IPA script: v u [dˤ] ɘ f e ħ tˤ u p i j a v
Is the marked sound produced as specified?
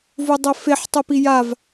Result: yes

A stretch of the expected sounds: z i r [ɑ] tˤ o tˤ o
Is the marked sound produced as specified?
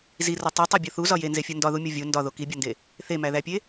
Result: no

